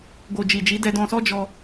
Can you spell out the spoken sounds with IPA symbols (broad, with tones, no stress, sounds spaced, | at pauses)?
ɡ o˨ d͡ʒ i˨ d͡ʒ i˨˦ d ɛ˧ d ɔ̃˧ s ɔ˦ d͡ʒ ɔ˧